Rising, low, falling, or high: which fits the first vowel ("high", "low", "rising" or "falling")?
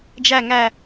low